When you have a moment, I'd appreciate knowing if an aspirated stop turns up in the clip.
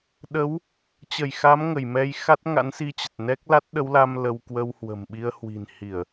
no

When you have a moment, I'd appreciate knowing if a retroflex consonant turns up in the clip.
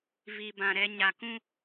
no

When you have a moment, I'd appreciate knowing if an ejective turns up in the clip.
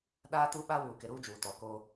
no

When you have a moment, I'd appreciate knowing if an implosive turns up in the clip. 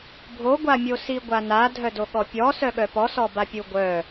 yes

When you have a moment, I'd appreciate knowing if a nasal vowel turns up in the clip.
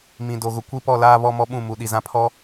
yes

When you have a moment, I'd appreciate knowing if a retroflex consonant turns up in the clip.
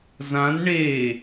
yes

